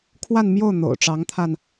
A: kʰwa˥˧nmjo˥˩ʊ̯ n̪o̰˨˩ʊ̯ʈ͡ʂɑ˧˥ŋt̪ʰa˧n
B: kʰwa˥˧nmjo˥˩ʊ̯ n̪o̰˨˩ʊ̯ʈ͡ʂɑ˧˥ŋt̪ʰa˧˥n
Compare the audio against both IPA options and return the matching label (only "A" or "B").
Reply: A